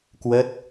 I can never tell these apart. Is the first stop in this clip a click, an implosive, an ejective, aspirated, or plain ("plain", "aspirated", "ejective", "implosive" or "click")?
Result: plain